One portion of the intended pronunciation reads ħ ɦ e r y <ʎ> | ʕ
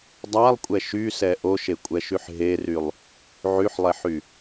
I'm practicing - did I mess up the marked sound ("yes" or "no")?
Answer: yes